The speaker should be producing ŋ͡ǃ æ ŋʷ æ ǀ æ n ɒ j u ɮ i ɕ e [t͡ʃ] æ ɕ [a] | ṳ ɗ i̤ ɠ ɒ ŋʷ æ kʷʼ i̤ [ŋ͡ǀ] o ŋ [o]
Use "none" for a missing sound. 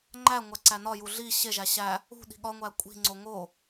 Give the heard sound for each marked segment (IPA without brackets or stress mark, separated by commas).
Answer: ʒ, æ, ŋ͡ǀ, o